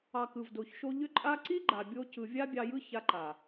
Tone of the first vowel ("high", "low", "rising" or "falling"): low